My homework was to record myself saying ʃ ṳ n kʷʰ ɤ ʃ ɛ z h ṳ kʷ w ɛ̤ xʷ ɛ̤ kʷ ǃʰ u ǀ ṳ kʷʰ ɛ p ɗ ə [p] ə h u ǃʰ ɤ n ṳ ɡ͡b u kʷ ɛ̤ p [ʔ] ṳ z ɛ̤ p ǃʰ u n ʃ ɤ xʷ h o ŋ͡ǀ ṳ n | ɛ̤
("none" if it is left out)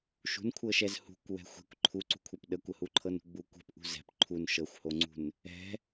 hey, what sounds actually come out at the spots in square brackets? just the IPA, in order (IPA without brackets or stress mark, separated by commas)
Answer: kʷ, ʔ